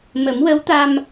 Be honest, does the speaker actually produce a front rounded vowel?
no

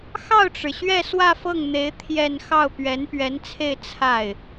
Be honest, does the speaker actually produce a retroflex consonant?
yes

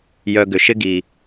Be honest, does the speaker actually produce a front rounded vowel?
yes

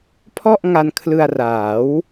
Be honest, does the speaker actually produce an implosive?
no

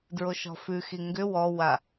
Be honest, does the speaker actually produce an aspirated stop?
no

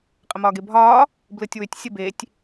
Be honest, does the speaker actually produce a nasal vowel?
no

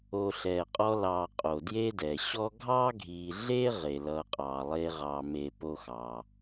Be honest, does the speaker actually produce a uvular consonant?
yes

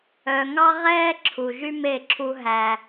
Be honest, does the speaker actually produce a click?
yes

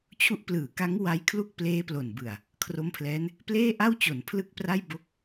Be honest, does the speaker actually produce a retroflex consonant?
no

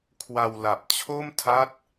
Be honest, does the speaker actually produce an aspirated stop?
yes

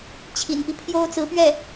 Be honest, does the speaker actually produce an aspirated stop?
yes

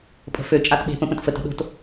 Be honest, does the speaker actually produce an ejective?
yes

